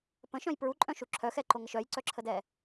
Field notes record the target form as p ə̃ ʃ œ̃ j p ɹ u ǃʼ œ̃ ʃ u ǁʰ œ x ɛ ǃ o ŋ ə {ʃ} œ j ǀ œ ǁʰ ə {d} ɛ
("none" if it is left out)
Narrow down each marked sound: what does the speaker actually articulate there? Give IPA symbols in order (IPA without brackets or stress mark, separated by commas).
ʃ, d